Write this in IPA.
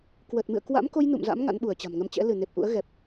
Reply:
k w ə˨˩ t̚ m ɨ̰˧˨ ə̯ k w a̰˧˥ m k o˧ j n ṵ˧˨ m z a̰˧˥ m ŋ a̰˧˥ n ɓ u˧˩ ə̯ t͡ɕ a̤˨˩ m ŋ ə˧ m t͡ɕ ɛ̰˧˥ l ɨ˧˩ n e˨˩ p̚ ʔ ṵ˧˥ ə̯ ɣ ɛ˨˩ p̚

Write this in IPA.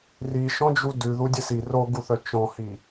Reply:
r i ʃ ɔ̃ d͡ʒ u d ʉ ð u dʲ ɘ s i r o ɡ u θ œ t͡ʃ ɔ̃ h i

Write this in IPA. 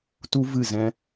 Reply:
t u˦ v ɨ˦˨ z ɛ̃˦

